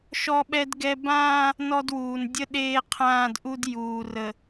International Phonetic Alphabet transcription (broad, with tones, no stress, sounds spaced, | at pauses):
ʃ ɔ˦ ɓ ɛ˦ d ɡ ɛ˦ b ãː˦ | n ɔ˦ d w uː˨ n dʲ ə˦ ɗ eː˦ qʰ ãː˦˨ d ʔ u˦ d j uː˨ r ə˨